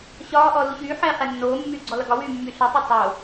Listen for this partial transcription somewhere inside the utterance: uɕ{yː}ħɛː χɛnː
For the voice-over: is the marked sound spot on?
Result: yes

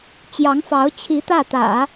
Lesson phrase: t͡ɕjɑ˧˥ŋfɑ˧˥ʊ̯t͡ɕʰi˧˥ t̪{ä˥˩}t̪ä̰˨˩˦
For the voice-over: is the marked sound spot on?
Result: yes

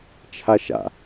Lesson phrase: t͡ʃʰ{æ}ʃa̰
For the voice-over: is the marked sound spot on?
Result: no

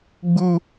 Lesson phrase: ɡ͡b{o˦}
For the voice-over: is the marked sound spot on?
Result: no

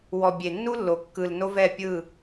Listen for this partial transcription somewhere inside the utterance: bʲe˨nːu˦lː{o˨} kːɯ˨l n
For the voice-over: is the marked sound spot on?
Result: yes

